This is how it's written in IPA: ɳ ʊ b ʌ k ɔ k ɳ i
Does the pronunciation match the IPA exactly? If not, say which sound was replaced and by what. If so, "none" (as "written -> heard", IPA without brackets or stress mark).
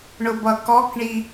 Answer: none